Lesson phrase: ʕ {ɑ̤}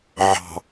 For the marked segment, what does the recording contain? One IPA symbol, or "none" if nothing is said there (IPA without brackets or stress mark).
ɑ̤